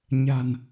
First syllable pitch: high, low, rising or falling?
low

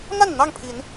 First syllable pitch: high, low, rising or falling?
falling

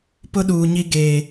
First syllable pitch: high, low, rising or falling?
high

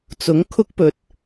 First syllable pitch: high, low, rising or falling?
rising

